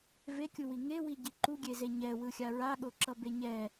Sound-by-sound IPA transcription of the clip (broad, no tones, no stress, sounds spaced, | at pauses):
v e kʲ u w i ŋ e w i ɟ i ǃ u ɡʲ e z e ɲ ɛ w ɯ xʲ a ɹ a ɠ o ǁ ʌ b e ɲ ɛ